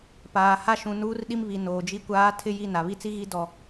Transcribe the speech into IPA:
p aː˨ h a˦ ʃ ũ˨ n uː˦ r ɗ i˦ m β i˨ n oː˨ d͡ʒ i˦ kʷ aː˦ tʰ ɪ˦ j i˦˨ n a˨ β i˦ t͡s i˦ ɣ i˦ d ɔ˨

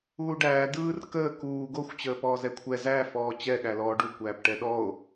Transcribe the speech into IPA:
uː ɖ æː d ɯː r k əː k uː ɡ o xʷ t͡ɕ əː p ɔː z ɛ kʷʰ ɛ z æ f ɔː t͡ɕ ɛ ɠ æ l ɔː ɖ u kʷ æː p ʈ ɛ ɗ ɔ o̯

